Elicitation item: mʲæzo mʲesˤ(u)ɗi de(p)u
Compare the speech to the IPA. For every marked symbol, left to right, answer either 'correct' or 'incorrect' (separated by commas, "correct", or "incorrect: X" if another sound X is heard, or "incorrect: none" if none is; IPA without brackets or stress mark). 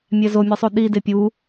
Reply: correct, incorrect: pʲ